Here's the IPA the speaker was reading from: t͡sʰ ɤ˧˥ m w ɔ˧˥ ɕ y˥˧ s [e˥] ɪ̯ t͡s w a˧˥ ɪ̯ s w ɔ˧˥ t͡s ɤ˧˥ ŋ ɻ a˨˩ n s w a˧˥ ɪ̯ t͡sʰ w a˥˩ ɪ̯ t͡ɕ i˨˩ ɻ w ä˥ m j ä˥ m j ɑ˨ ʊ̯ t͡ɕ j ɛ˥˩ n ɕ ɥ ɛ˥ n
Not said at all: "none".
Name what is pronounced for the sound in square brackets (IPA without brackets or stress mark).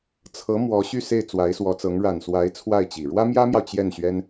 e˥˩